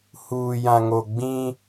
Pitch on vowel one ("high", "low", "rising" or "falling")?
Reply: low